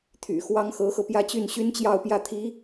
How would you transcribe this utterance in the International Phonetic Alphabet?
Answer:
t̪ʰ y̰˨˩ x w ɑ˥ ŋ x ɤ˧˥ x ɤ˧ p j ä˥˧ t͡ɕ y˥˩ n ɕ y˥ n t͡ɕ j ɑ˥˧ ʊ̯ p j ä˥˩ t̪ʰ i˧˥

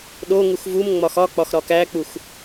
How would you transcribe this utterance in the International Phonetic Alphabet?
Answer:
ɗ o ŋ u x v u m ŋ͡m ɒ x ɒ k͡p ɒ x ɾ ɒ k æ k͡p u x

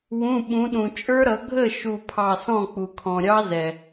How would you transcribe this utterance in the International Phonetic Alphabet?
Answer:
w ũ˩˧˩ ɓ ũ˩˧ ɗ ũ˩ t͡ʃʼ ə˞˦˥ ɾ ʌ˩˧ ɡʱ ə˥˩ ʃ u˧˩ pʰ ɑ˧˩ s ɔ̃˥˩ k͡p u˩ kʰ ɔ̃˩ ɾʲ ɑ˦˥ z ɛ˩

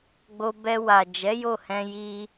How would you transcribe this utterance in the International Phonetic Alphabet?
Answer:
ɡ͡b o˧ b ɛ˧ w a˨ d͡ʒ ɛ˨˦ j o˦˨ h ɛ̃˧ j i˧

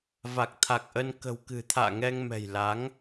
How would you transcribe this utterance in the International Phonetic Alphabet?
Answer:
v a˨˩ k̚ t̪ʰ a˨˩ k̚ ʔ ə˧ n k ə̤˨˩ w k ɨ̤˨˩ t̪ʰ a̰ː˧˨ ŋ ɛ˧ ŋ m ɛ̤˨˩ j l a˨˦ ŋ

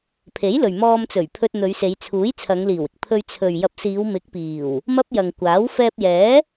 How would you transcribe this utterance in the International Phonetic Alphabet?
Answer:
pʰ e˨˥ j l ɵ˨ ɥ m ɔː˧ m t͡s ɵ˨˩ ɥ pʰ ɵ˧ t̚ n̪ ɵ˨˧ ɥ s e˨˧ j t͡sʰ uː˨˥ j t͡sʰ ɐ˨˧ ŋ l iː˨˩ w ɪ˨ k̚ pʰ ɵ˧ ɥ t͡sʰ ɵ˨ ɥ j ɐ˨˥ p̚ s iː˨˧ w m ɪ˨˥ k̚ p iː˨˩ w | m ɐ˥ p̚ j ɐ˨ ŋ kʷ aː˨˥ w f ɛː˧ p̚ j ɛː˨˥

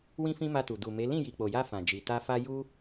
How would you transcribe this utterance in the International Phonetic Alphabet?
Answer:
w ĩ˦ f ĩ˦ m a˧ t u˨ d u˨ m e˨˦ l ĩ˦˨ j i˨ k͡p o˨ j a˧ f ã˨ d͡ʒ i˨ t a˧ f a˦ j u˦

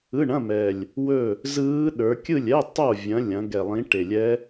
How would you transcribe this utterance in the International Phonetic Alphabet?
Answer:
ɯ˧˥˧ ɳ ɐ̃˧˥˧ m ɛ˨˩ lʲ | w ɵ˥˨ | z ɯː˦˥ ɗ ə˞˨˦ kʲ ɯ˥˨ lʲ ɛ˧˥˧ tˤ o˥˨ vʲ ɐ̃˨˦ lʲ ɐ̃˨˦ ɡ ɛ˨˩ lˠ ĩ˨˦ ʈ e˨˩ lʲ ɛ˦˥

